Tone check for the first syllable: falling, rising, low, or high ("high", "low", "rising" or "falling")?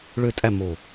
falling